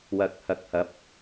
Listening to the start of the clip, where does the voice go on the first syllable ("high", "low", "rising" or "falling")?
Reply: rising